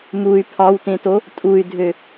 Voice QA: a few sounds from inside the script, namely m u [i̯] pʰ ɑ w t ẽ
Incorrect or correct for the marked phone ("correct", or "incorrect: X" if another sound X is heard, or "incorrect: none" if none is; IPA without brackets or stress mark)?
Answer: incorrect: y̯